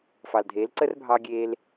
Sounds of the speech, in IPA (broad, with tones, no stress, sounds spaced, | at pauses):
f ɑ˩ l dʱ eː˩˥ l ǀ ə˥ r bʱ ɑː˧ ɡʲ eː˧ l